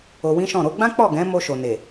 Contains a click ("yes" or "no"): no